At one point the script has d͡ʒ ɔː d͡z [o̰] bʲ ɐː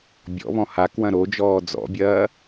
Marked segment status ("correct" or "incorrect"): incorrect